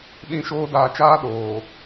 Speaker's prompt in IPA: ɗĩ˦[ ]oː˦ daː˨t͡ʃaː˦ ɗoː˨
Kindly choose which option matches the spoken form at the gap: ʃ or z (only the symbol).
ʃ